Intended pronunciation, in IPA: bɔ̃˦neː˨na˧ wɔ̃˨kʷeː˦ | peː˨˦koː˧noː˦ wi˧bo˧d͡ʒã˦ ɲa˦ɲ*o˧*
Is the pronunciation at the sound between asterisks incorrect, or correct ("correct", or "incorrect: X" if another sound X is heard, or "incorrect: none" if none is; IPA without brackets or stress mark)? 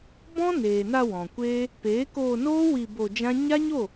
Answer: incorrect: o˦˨